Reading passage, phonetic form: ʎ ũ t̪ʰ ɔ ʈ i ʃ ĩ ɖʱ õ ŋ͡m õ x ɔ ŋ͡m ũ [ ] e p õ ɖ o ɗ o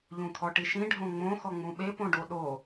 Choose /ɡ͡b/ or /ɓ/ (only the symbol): ɓ